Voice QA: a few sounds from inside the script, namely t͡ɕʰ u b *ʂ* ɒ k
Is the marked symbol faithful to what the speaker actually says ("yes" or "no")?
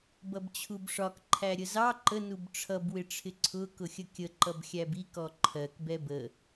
yes